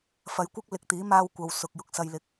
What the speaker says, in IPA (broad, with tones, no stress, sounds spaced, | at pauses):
f ɐ˨˧ j kʷ ɪ˥ k̚ l ɪ˨ k̚ t̪ iː˨˥ m aː˧ w kʷ ɐ˨ w s ʊ˨ k̚ j ʊ˧ k̚ s ɐ˧ j l ɪ˨˥ k̚